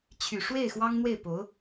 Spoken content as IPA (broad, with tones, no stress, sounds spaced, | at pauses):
t͡ɕʰ y˨˩ ʂ w e˥˩ ɪ̯ x w ɑ˥ ŋ n̪ w e˥˩ ɪ̯ p o˧˥ ʊ̯